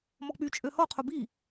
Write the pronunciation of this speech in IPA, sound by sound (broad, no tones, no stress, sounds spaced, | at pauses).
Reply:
m ɔ k͡p y t͡ʃʼ ø h ɔ qʰ o b i